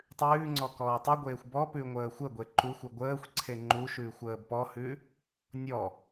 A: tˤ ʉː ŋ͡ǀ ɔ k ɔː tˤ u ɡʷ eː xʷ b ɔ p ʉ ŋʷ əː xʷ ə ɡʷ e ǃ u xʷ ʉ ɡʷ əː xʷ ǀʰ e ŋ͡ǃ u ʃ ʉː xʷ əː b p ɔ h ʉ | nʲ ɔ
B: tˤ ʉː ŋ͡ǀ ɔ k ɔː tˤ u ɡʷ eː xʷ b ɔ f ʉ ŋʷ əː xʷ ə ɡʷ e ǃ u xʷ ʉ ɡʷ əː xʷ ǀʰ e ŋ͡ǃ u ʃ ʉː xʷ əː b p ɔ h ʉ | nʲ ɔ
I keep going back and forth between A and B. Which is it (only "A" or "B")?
A